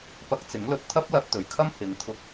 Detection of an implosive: absent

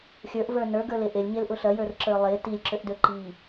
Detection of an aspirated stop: absent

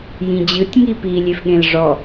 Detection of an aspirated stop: absent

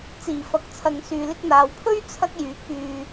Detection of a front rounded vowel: present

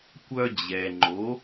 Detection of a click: present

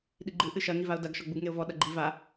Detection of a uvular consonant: absent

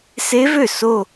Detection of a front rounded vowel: present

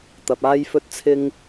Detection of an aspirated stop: present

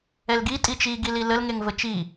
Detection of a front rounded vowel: absent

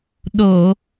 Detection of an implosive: present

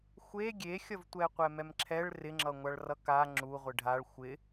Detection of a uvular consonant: present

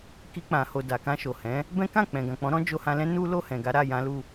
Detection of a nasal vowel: present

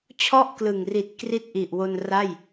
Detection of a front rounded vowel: absent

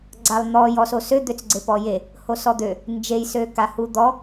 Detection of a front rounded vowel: present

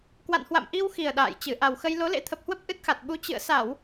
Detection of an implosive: present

